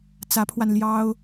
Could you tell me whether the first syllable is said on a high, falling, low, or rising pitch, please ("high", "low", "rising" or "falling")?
rising